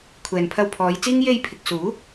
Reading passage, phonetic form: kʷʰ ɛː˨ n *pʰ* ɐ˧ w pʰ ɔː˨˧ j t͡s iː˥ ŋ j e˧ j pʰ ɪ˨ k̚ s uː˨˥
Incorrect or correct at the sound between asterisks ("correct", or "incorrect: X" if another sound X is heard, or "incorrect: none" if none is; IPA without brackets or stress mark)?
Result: correct